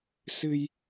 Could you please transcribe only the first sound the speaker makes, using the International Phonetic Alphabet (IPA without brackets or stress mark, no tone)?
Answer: s